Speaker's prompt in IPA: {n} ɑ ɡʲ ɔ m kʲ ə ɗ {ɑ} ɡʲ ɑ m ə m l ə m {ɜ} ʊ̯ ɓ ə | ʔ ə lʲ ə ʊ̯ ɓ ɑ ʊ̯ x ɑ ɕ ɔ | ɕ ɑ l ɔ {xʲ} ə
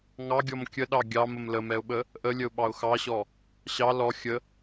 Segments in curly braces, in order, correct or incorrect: incorrect: ŋ, correct, incorrect: ɛ, correct

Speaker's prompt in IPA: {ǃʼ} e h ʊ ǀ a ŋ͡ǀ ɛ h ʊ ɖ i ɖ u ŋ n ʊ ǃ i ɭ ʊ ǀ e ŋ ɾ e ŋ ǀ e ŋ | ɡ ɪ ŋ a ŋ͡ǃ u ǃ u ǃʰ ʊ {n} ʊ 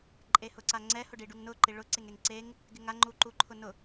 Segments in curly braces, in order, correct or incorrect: correct, correct

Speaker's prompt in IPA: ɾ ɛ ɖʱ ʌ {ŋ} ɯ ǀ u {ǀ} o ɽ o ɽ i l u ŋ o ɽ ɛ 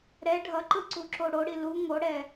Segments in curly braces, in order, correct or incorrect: incorrect: ǃ, incorrect: ǁ

